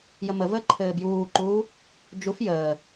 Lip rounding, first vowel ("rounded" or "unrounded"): unrounded